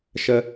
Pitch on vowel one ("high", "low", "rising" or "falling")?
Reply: high